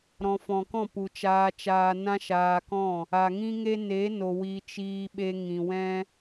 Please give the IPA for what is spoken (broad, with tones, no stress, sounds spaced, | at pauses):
ɾ ɔ̃˨ f ɔ̃˨ k ɔ̃˦˨ p u˨ t͡ʃ aː˧ t͡ʃ aː˧ n ã˦ ʃ aː˧ k ɔ̃˦˨ | a˨ ŋ ĩ˦ ŋ e˦ n e˨˦ n o˨ w i˨ t͡ʃ iː˧ ɓ e˧ ŋ ĩ˨ w ɛ̃˦